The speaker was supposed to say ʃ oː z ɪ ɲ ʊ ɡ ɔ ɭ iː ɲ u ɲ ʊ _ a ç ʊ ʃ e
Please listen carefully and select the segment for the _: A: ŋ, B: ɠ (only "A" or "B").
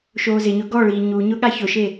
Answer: B